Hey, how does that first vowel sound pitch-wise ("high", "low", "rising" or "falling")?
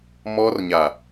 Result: high